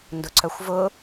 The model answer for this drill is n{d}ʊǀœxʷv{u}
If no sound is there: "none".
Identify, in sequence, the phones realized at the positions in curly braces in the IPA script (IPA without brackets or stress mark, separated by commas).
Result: d, ʊ